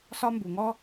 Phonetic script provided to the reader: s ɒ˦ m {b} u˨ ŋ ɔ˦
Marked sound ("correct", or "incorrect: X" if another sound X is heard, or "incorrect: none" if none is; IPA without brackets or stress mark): correct